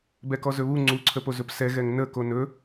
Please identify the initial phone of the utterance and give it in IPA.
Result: b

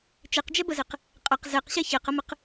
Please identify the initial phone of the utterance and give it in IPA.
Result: t͡ʃ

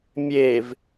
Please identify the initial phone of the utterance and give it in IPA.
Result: mʲ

